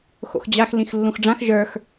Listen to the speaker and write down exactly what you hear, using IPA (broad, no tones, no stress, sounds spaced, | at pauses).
x o̰ x d͡ʑ a x l ĩ x lː ũ x ɖ͡ʐ ã x ʒ ə˞ x